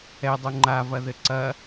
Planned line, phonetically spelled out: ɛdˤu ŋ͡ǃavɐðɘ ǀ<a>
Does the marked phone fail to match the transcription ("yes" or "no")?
yes